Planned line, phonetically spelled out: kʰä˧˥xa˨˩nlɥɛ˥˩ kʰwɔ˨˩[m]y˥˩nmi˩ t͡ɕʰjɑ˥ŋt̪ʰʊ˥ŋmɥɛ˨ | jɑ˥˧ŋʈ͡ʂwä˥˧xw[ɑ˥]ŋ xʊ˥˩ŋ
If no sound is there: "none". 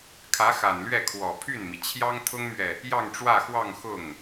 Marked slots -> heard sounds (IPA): pʰ, ɑ˥˧

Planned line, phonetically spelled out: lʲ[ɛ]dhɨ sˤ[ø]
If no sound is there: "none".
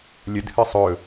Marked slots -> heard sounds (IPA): ə, ɵ

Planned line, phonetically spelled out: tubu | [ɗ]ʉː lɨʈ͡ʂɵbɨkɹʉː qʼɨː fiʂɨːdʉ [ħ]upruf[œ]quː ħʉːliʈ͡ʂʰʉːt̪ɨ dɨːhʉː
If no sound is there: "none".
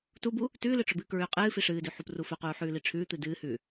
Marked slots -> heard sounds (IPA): t, ħ, ɵ

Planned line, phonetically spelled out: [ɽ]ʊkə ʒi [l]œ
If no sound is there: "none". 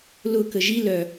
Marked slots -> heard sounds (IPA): l, l

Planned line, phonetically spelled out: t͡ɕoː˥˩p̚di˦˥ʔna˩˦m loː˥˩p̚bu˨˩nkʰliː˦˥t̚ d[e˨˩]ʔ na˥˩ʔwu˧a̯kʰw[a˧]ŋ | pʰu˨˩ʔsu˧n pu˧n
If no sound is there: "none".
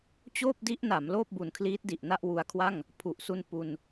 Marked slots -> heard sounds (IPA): i˨˩, a˥˩

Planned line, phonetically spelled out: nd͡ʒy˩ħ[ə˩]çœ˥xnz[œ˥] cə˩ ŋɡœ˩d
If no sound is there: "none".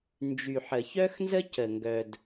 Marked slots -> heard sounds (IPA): ə˩, ə˥

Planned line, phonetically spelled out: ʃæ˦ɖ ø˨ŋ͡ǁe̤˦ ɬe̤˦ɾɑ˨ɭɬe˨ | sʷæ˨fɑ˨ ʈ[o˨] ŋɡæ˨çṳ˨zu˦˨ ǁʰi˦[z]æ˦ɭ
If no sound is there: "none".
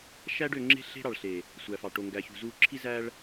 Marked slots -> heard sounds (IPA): o˨, z

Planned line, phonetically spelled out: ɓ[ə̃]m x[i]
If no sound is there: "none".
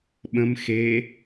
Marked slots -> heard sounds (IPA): ə̃, e

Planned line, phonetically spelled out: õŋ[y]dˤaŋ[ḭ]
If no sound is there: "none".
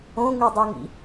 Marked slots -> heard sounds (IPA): y, ḭ

